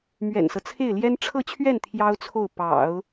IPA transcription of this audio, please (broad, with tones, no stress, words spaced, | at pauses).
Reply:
mɥɛ̰˨˩nsɤ˦ t͡sʰe˥˩ɪ̯ljɛ˥n ʈ͡ʂʰɤ˥˧t͡ɕʰɥɛ˥˩n t̪ʰjɑ˥ʊ̯t͡sʰo˥˩ʊ̯ pɑ̰˨˩˦ʊ̯